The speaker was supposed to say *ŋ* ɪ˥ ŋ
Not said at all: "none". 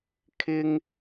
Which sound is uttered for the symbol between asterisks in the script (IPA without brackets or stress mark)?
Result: kʰ